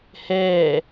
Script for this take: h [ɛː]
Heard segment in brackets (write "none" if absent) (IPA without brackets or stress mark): ɛː